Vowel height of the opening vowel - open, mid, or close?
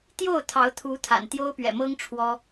mid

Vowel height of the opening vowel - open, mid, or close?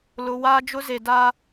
close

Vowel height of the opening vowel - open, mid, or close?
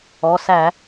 mid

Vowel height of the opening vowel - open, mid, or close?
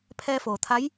mid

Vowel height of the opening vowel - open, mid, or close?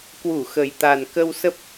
close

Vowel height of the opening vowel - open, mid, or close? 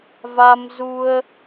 open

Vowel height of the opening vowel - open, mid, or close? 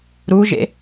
close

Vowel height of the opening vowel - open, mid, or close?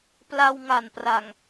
open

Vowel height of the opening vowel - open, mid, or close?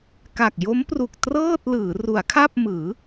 open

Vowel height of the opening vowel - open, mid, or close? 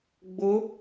close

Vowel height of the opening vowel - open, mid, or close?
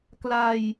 open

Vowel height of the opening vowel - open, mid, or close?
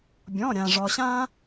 mid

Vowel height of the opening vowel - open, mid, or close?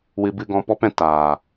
close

